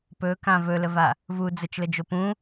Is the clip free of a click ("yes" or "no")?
yes